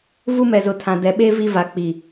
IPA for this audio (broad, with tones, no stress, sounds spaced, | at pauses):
v u˦ m ɛ˨ z ʊ˨ tʰ ã˨ d ɛ˨ ɓ e˦ v i˦ v a˨ k͡p i˨